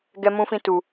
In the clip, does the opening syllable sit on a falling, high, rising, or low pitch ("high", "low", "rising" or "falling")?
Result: high